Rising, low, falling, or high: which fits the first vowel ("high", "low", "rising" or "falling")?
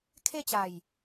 falling